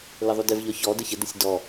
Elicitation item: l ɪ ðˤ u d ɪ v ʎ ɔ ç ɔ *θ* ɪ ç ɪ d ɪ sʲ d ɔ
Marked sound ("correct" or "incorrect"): incorrect